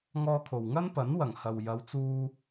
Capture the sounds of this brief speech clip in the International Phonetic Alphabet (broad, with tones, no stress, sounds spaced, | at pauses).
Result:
ŋ ɔː˧ kʰ o˨ w ŋ ɐ˥ n p ɐ˨˥ n w ɐ˨˩ ŋ h ɐ˨ w j ɐ˨˧ w t͡s uː˧